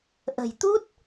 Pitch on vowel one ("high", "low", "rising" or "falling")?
low